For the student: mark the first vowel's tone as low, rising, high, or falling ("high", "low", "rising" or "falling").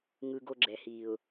high